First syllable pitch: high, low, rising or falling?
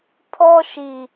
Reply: high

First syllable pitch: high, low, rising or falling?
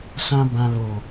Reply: high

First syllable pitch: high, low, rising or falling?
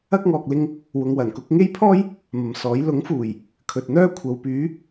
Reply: high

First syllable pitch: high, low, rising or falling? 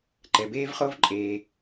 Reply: low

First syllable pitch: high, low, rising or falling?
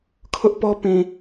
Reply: high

